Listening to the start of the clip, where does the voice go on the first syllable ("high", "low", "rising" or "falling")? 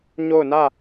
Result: falling